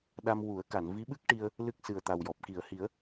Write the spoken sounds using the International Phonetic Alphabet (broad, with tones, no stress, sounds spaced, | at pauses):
ɗ a˧ m w u˨˩˦ ə̯ k a˨˩˨ n v i˧˥ ɓ ɨ˦˥ k̚ ʈ i˧ ə̯ | l ɨ˦˥ k̚ s ɨ˨˩ ə̯ t̪ a˨˩ w j ɔ˨˩ p̚ k i˨˩˨ ə̯ h i˨˩˦ ə̯